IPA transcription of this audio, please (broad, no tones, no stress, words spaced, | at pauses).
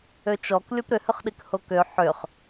øt͡ʃɔk lʲopɾʏhʏχɗik hokø ħʏχ